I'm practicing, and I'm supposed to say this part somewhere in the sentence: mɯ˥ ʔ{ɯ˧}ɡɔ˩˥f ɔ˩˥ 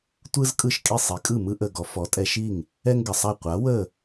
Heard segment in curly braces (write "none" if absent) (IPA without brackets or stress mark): ə˧